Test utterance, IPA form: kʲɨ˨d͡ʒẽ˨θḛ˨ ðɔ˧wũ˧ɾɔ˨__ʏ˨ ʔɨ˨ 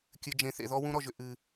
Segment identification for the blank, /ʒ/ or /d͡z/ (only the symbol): ʒ